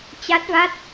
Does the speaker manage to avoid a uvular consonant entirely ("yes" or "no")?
yes